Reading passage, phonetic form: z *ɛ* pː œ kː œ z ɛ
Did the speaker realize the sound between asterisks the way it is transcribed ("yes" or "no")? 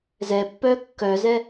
yes